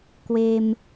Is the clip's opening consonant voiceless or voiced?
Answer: voiceless